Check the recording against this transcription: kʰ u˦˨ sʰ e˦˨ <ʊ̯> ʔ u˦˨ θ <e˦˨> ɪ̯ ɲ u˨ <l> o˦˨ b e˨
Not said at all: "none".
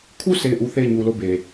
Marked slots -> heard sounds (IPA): ɪ̯, e˦˨, l

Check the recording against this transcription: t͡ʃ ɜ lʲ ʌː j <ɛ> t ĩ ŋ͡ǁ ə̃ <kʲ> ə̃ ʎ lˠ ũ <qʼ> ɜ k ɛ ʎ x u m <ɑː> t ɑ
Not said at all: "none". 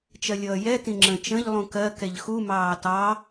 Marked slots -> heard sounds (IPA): ɛ, t͡ʃ, k, ɑː

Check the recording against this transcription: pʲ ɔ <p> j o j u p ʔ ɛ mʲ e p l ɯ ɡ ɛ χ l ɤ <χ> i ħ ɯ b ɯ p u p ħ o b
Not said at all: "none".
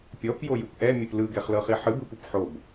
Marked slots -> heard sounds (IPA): p, χ

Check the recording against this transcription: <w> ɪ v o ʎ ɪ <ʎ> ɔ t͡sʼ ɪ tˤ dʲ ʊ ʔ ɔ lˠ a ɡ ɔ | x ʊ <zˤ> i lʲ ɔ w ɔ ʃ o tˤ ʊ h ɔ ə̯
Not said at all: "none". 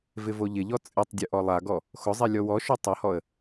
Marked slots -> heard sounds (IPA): v, ʎ, zˤ

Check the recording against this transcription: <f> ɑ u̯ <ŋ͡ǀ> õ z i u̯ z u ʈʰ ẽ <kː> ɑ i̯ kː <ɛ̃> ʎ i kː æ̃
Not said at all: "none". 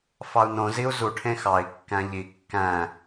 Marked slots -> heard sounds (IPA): f, n, x, æ̃

